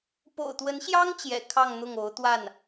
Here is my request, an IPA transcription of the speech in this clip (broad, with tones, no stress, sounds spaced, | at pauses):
p o̰˨˩ ʊ̯ t̪ w ə˧˥ n ɕ j ɑ˥ ŋ t͡ɕ j ɛ̰˨˩ kʰ ɑ˥˧ ŋ n̪ ʊ˥˩ ŋ o˧˥ ʊ̯ t̪ w a˥˩ n